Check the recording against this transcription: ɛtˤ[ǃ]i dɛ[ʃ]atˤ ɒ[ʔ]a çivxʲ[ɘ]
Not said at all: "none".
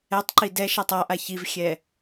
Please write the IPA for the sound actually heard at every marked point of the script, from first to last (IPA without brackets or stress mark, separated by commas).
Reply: ǃ, ʃ, ʔ, ɛ